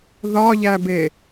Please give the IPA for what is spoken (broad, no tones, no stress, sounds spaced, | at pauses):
ð ɒ ʎ æ b e